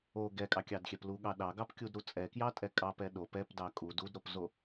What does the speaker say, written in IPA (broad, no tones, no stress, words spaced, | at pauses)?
o ɡɛkʼɑkʲɑdxʲɛp luɠɑ ɗɑɡɑpkʲudɾu t͡sʼɛkjɑtʼɛ kʼɑpɛ ɗo pɛpdɑ kʼud udɾopzo